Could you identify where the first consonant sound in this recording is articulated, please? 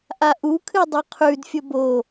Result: glottal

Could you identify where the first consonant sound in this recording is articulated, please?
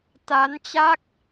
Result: alveolar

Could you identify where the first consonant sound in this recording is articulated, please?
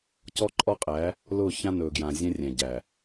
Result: palatal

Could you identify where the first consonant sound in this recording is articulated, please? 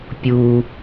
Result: labial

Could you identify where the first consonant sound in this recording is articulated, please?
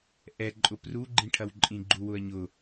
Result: glottal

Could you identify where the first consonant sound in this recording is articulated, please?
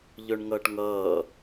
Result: palatal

